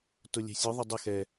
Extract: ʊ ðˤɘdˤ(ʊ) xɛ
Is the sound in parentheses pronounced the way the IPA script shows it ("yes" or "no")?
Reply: no